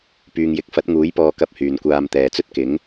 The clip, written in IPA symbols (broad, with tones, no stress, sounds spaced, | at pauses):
p yː˨ ŋ j ɪ˨˥ k̚ f ɐ˨˥ t̚ ŋ uː˨˥ j p ɔː˧ k ɐ˧ p̚ h yː˨ n kʷ aː˧ m t̪ ɛː˨ t͡s ɵ˥ t̚ k ɪ˨˥ ŋ